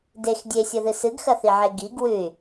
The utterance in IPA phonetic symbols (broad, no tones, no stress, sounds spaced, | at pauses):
d e x dʲ e sʲ o ð ɨ s ɨ ɡ x ɐ θ i ʕ e ɡ i ɡ w ʉ y̯